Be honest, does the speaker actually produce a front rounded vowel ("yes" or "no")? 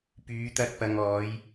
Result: yes